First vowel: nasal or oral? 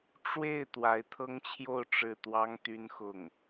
oral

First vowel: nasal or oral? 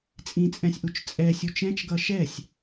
nasal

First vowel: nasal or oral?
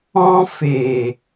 nasal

